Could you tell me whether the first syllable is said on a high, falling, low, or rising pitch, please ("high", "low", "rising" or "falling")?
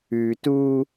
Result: low